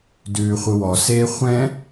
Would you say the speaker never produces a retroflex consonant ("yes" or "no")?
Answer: yes